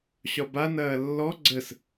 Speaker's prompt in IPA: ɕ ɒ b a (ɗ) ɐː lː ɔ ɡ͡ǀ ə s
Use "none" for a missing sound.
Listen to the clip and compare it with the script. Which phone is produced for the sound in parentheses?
n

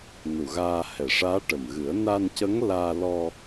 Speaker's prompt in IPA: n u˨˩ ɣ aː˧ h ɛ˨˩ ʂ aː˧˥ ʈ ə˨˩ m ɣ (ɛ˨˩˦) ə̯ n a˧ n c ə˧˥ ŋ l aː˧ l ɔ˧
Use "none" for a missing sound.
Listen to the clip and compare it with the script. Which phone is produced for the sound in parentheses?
ɨ˨˩˦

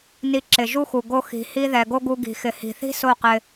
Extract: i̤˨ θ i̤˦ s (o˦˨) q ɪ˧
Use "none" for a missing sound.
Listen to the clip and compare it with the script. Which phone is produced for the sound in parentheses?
o˦˨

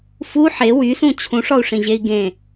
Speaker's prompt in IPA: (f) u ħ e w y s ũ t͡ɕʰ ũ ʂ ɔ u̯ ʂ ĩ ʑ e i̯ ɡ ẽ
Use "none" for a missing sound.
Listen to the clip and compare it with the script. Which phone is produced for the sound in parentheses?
f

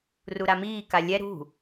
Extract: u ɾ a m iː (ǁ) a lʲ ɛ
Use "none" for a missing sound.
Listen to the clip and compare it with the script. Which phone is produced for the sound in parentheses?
k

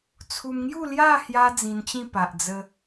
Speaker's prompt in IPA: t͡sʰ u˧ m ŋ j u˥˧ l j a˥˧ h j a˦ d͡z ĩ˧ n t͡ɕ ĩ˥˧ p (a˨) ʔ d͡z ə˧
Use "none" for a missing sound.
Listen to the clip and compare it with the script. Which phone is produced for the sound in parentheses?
a˨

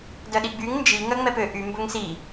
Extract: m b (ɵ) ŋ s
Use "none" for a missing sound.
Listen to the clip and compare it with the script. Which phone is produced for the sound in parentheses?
ɵ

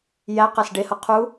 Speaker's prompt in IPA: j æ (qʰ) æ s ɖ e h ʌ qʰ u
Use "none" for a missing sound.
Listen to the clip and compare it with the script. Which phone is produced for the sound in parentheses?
q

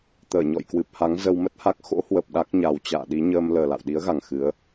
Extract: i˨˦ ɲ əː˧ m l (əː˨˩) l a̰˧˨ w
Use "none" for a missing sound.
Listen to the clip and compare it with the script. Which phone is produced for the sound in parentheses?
əː˨˩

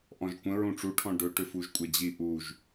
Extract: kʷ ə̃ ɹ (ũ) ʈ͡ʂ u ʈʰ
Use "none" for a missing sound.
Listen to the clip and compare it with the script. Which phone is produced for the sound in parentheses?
ũ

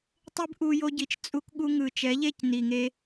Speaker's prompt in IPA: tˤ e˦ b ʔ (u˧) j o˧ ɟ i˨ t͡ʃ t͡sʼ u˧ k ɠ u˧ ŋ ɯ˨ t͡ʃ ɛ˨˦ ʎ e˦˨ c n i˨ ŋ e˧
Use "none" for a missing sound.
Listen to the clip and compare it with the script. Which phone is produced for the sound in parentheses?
u˧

